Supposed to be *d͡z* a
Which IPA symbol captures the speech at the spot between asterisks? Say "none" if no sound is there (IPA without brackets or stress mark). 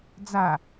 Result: d͡z